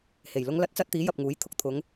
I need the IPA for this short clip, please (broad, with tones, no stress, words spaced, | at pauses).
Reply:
he˨˩jlʊ˥ŋlɐ˥t̚ t͡sɐ˥t̚t̪iː˨˥ jɐ˨p̚ŋuː˨˥j t̪ʰʊ˨k̚t̪ʰʊ˨˧ŋ